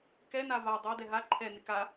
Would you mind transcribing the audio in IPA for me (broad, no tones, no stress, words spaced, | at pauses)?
kɛna va dˤadɛ ɦa ǃʰɛnɪ ka